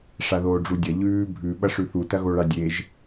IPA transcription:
ʂaðoːɖ͡ʐudʲɐ ʎʉː bʱʉ ɓɐʂʉθu tɐɣoɭadʲeʒ

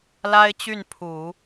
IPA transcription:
la˥ɪ̯t͡ɕy˥˩npʰu˨˩˦

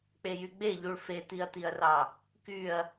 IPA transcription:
k͡pejyɡ͡beʎuɭ fet̪iɐ̯t̪iɐ̯rɑ | kyɐ̯

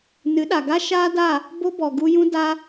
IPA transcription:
nɨ˨˦ɗa˨ɡa˦ ʃaː˦da˦˨ | bo˦bɔ˨ɡu˧jũ˦ da˧

